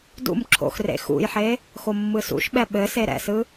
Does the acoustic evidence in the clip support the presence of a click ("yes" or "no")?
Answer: yes